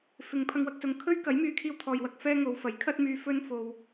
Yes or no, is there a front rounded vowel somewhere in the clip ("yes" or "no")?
yes